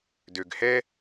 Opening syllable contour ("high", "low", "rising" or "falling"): low